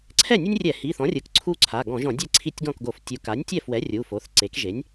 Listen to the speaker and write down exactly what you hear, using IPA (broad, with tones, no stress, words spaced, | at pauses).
ǀʰɛ˥˩nʲu˦nʲrʲɛ˧˩˧ hi˩˧˩θɔ̃˩˥rʲɯ˩˧k ǀʰu˦ǀʰa˩˧˩ ɡɔ̃˧˩˧ʒɔ̃˧˩˧dʲɛ˥˩ ǀʰi˦tʲɡɔ̃˥˩kɡo˧˩˧f tʲu˩˧ka˩˥nʲtʲɛ˥˩fwɛ˩˥ rʲu˩˧˩fo˩˥θ ǀe˩˥kʒe˩˥nʲ